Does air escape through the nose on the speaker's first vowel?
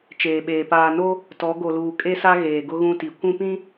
no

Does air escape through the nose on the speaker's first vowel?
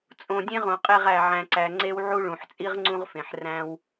yes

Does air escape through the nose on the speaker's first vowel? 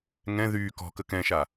yes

